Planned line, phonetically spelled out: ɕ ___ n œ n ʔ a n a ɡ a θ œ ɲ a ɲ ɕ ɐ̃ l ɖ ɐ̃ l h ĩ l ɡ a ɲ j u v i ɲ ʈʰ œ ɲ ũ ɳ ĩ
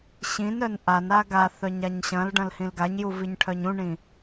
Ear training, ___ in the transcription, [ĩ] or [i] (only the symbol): ĩ